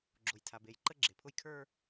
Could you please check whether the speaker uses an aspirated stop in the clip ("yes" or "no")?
yes